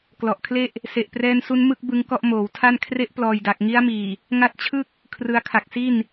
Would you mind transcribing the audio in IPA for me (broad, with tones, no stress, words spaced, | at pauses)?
klɔ˨˩ʔkʰle˥˩ʔ | se˨˩ʔprɛː˧nsu˧n mɯ˥˩k̚bɯ˧ŋ kɔ˥˩ʔmoː˩˦wtʰa˥˩n kʰre˦˥ʔplɔː˨˩jda˨˩k̚ ŋi˦˥a̯miː˨˩ | ŋa˦˥t̚t͡ɕʰɯ˥˩k̚ | kʰrɯ˧a̯ kʰa˨˩k̚si˥˩n